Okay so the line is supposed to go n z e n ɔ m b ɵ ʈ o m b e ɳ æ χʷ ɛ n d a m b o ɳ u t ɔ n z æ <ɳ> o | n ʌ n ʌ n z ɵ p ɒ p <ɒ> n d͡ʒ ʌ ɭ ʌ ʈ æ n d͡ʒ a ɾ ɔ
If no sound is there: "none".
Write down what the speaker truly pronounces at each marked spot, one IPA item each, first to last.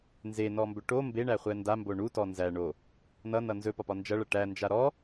ɳ, ɒ

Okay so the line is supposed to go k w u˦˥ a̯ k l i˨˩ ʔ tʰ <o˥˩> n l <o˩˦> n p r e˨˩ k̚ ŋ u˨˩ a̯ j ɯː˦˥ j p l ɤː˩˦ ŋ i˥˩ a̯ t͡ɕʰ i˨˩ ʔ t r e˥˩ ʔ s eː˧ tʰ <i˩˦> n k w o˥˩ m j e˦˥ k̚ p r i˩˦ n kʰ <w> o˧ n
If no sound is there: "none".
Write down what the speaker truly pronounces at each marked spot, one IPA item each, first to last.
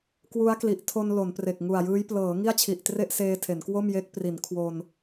o˧, o˩˦, e˩˦, w

